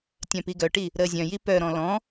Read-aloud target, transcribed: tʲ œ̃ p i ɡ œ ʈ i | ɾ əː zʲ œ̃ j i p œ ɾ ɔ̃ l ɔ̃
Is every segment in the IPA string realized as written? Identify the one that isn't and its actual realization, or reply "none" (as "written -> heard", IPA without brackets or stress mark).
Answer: none